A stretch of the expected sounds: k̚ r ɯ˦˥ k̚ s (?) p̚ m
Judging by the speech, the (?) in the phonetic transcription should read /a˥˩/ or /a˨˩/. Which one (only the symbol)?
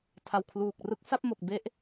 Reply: a˥˩